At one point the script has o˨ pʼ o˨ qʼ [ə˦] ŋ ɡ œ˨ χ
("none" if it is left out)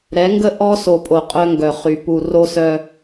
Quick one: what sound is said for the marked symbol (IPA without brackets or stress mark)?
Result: œ˦